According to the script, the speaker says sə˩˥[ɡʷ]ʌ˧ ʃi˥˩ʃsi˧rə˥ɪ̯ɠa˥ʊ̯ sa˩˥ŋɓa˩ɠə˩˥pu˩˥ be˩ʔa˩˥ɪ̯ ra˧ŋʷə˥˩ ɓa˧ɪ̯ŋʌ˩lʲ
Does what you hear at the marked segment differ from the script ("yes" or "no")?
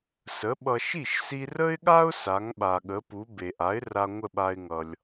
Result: yes